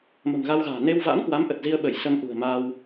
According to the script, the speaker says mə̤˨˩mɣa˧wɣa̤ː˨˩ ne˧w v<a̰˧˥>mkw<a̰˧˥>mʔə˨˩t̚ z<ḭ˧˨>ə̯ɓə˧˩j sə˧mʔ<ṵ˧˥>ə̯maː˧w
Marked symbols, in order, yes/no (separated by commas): yes, no, no, no